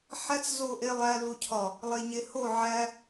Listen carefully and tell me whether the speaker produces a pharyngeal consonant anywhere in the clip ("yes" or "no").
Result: yes